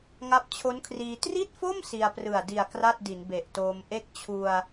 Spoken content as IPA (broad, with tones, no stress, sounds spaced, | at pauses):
ŋ a˦˥ p̚ t͡ɕʰ o˦˥ n kʰ r iː˧ t r i˥˩ t̚ f o˥˩ m s i˧ a̯ p r ɯ˨˩ a̯ d i˨˩ a̯ k r a˥˩ t̚ d i˩˦ n b e˨˩ ʔ t oː˧ m ʔ e˦˥ k̚ t͡ɕʰ u˧ a̯